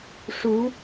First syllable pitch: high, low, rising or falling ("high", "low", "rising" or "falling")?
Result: rising